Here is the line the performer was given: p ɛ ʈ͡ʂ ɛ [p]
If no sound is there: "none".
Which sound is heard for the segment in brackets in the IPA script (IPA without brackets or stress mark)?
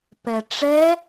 none